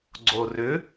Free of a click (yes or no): no